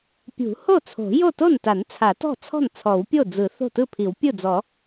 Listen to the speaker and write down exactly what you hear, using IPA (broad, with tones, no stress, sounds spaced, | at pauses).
pʲ ṳ˨˩˦ h o˥˩ t͡sʰ o̤˨˩˦ j o˥˩ t o˥˩ n t a˨˩˦ n t͡sʰ a˨˩˦ t ɔ̤˥˩ t͡sʰ ɔ̤˥˩ n t͡sʰ ɔ˨˩˦ w pʲ o˥˩ d͡z ɯ˨˩˦ θ o̤˥˩ t ɯ˥˩ pʰ i˨˩˦ w pʲ ɯ˥˩ d͡z ɔ˨˩˦